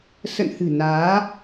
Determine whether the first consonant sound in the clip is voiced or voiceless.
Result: voiceless